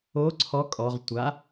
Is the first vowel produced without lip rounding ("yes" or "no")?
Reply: no